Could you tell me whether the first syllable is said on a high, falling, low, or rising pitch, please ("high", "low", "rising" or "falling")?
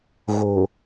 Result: low